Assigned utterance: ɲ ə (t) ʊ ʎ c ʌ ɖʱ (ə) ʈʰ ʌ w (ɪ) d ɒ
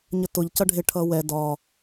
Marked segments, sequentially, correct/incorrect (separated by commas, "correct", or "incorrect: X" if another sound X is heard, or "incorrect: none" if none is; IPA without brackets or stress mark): correct, incorrect: ɪ, incorrect: ɛ